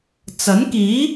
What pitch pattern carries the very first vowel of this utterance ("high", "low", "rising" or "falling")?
rising